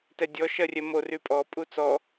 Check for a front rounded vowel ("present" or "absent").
present